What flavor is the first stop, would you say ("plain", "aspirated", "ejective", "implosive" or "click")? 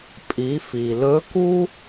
ejective